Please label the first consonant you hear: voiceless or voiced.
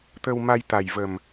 voiceless